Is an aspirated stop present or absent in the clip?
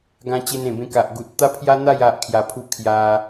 present